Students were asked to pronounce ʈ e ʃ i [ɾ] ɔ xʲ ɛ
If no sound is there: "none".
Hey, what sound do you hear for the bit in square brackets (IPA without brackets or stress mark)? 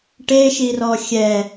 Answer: r